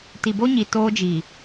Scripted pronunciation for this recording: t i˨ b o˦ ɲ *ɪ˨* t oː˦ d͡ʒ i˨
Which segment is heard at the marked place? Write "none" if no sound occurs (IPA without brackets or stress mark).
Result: i˨